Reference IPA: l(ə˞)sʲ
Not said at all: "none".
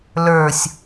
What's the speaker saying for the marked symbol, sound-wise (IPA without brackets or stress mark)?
ə˞